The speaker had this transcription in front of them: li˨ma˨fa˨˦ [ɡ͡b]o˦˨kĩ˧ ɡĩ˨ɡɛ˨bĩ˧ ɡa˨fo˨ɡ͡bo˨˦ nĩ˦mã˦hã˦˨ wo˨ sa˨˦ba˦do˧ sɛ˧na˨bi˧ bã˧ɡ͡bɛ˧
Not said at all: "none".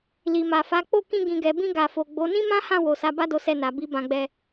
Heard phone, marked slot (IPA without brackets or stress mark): k͡p